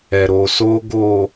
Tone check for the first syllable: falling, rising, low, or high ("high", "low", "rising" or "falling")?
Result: low